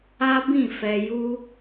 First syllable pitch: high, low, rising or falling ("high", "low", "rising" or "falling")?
high